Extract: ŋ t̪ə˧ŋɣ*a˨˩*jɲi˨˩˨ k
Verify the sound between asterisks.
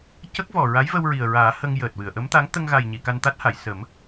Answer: correct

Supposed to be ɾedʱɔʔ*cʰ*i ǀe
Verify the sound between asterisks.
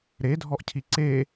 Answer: correct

